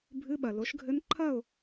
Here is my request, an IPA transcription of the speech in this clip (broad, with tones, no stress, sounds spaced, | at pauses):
bʱ ɨ˧˥˧ ɓ ɐ˩ l o˩˥ ʃ ɡʱ ɘ˧˥ n ǃʰ ɐ˥˨ ʊ̯